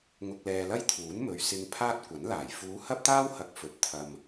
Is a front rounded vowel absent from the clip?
yes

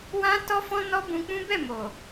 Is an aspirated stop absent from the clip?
yes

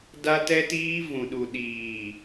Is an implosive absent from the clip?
no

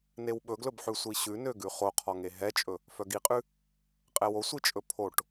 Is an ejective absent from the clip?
no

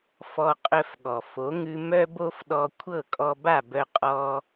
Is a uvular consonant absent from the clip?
no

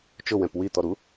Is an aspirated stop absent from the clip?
yes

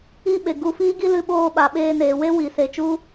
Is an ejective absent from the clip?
yes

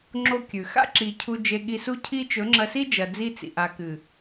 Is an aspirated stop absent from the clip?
no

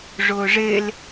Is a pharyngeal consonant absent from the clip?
yes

